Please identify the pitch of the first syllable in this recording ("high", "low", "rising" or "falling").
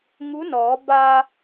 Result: rising